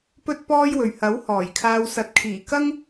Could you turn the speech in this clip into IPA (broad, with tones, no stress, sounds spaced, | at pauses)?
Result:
p ɵ˥ t̚ p ɔː˥ j w ɵ˨ ɥ h ɐ˨˥ w h ɔː˨˩ j kʰ aː˧ w s ɐ˨˥ t̚ kʰ iː˨˩ k ɐ˥ ŋ